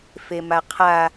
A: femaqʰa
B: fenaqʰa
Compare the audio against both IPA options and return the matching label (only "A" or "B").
A